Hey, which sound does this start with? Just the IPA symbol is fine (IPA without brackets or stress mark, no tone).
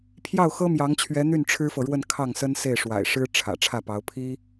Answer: pʰ